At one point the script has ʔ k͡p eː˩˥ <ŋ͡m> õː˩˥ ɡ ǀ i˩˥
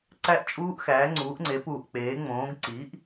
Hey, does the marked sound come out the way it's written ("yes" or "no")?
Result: yes